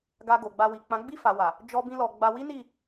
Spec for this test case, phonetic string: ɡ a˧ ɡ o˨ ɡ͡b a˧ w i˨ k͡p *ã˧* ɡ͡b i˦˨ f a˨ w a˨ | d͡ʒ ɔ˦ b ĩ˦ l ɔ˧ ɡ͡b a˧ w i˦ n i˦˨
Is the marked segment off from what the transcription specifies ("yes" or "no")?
yes